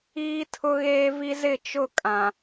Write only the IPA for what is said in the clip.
iː˦tʰʊ˦ɣeː˦vi˦ zɪ˦˨t͡ʃʊ˦˨ kʼã˨

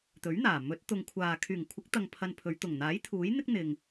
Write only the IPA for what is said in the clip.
t̪ɵ˨˥ɥn̪aː˨˩ mɵ˨˥t̚ t̪ʊ˨ŋkʷʰaː˨ kʰyː˨˩ŋkʷʰɪ˨˥k̚ t̪ɐ˧ŋpʰɐ˧npʰɵ˨˧ɥ t̪ʊ˨˩ŋn̪aː˨˥j t̪ʰuː˨˥jn̪ɪ˥k̚ n̪ɪ˨ŋ

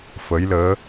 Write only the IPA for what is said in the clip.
fə˧˥jləː˧˥

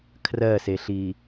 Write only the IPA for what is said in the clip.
kʰrɜseɬi

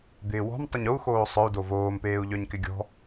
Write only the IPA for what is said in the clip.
d̪ɪːwɔ̤m tˤʏɲou̯ xoːsˤœu̯ dovoːm peːu̯ʎœɲkɪɡʲɔ̤

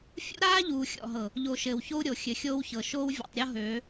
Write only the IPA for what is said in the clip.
fʲṵ˦ɾaː˦ʎuː˨ xʲɔ̰˨ɦɤ˨ | ʎo˨ ʃɘː˨wço˦u̯ɾʲo˨ xʲɘ˨xʲoː˦wçɤ˨ ʃoː˦wvʲɔ̰˨tˤ ɾʲɔ˦ ɦøː˨˦

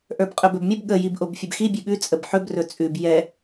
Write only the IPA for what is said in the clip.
ʔə˞bqʼɵbɵbmʲəb ɠə jibʔobfʲɵbxi bʲʉɠʉ t͡sʼəbħɵb rɵt͡sʼʉb jɛ

